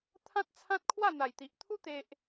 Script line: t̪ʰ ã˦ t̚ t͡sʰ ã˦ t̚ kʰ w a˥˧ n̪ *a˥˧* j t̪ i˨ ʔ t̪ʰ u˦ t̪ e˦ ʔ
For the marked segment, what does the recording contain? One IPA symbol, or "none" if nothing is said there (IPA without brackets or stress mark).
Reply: a˨˩